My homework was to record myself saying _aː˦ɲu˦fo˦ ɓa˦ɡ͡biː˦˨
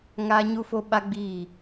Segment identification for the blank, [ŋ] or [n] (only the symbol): ŋ